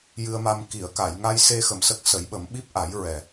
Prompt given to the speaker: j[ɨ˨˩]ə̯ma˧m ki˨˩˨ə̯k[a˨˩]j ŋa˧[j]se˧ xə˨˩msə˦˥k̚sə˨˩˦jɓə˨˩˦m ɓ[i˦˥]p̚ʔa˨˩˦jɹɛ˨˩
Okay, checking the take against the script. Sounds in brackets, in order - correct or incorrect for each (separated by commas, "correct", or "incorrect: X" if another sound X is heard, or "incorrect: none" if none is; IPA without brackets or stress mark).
incorrect: ɨ˧, incorrect: a˨˩˨, correct, correct